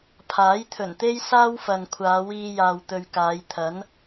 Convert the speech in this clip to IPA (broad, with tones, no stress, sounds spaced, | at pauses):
pʰ aː˨˥ j t̪ʰ ɵ˨˩ n t̪ e˥ j s aː˥ w f ɐ˨ n kʷʰ aː˨˧ w iː˧ j aː˨ w t̪ ɵ˨ ɥ k aː˨˧ j t̪ʰ ɐ˨˥ n